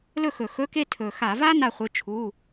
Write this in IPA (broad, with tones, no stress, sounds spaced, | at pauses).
l ɵ˥˨ x ɵ˧˩˧ x ɵ˧˥˧ k e˥˨ tʰ ɵ˨˩ x a˧˩˧ v a˥ n a˥˨ χʷ ɨ˧˥˧ t͡ʃʰ u˧˥˧